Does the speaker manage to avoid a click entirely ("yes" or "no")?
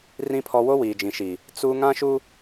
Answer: yes